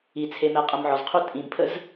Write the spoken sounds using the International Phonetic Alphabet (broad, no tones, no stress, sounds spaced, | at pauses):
i t͡sʰ e m ɛ qʼ ə m ʕ ɔ z qʰ u tʼ ĩ m pʰ ə z